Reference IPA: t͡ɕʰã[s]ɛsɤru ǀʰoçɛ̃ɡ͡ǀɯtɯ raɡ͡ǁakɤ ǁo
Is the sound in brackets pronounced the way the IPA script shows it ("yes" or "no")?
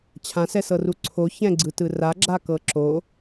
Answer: yes